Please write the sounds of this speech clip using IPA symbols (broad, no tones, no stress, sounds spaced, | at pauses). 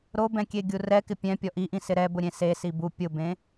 ɾ o b ɛ̃ kʲ e ɡʲ u r ɛ k ɪ pʲ ɛ̃ pʲ ɔ ʔ i ʔ ĩ s ɪ ɾ ɛ b ʊ ɾʲ ẽ s e s i b u pʲ ʊ b ẽ